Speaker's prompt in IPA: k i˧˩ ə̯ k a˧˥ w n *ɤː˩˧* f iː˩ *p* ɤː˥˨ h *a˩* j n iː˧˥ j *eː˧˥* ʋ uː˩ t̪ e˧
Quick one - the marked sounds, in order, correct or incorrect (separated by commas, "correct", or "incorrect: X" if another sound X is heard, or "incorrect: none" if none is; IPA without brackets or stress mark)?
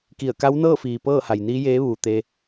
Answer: incorrect: ɤː˥˨, correct, correct, correct